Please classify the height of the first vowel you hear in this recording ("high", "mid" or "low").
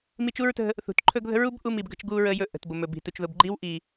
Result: high